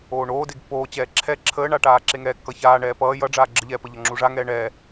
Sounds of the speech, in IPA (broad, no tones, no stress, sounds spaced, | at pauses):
oː ɳ oː d e ɡ pː oː t͡ɕ ɛː ǁʰ ɛ ǁʰ əː ɳ a ʈ aː ǁ e ŋ ɛː kː ʌ ç aː ɳ ɛː p ʌː j ʌ ɖ͡ʐ aː ɡ͡ǁ ə ʎ ɛː p ə ʎ ʌ ŋ͡ǁ u ʐ a ŋ ɛː ɳ ɛ